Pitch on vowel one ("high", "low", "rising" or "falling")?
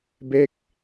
falling